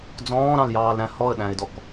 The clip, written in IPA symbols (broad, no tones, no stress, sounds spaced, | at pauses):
d͡z ɔ̃ː ɾ ɑ̃ l j ɑː l ɾ æ̃ h ɔ ə̯ ɗ æ̃ ɪ̯ d ɔ k